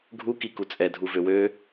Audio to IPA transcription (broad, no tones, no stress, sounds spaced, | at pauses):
ɡʱ u k i k u t͡sʼ ɛ dʱ u v ø w ø